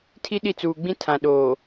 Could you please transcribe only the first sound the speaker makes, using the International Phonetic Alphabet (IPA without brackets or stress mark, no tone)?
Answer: tʰ